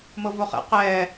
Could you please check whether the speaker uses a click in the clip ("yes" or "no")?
no